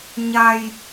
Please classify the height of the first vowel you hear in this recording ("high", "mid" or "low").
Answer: low